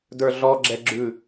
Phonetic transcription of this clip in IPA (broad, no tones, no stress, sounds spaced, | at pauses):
d ə˞ ɮ ɔ ɡ͡ǁ ɛ ɡ͡ǁ ʉ